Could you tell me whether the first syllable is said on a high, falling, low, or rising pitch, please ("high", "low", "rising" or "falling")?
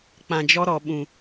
low